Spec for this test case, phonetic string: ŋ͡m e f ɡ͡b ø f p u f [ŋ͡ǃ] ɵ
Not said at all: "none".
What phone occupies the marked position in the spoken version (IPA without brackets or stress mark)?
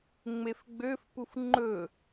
ŋ͡ǃ